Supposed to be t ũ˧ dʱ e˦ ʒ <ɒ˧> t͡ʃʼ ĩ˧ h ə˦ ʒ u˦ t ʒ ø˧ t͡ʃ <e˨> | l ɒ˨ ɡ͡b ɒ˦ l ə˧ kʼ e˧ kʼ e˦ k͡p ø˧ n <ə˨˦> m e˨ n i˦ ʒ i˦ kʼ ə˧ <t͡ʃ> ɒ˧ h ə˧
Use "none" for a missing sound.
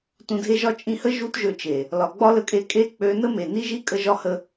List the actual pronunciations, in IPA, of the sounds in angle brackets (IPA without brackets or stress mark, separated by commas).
ɒ˦, e˨, ə˦, ʒ